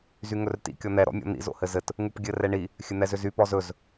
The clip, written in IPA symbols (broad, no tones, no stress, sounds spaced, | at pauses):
z y ŋ ɵ r t ḭ kʲ ɔ n̪ ɛ ɾ ɔ̰ mʲ ɔ̰ n̪ ḭ z o̰ h ɘ z ɘ t | ŋ u p ɡʲ ɘ r ɛ ɳ i | xʲ ɘ n̪ ɛ z ʏ z y p ɔ z ɵ z